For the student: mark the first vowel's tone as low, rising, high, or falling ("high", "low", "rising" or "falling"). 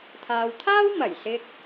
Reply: low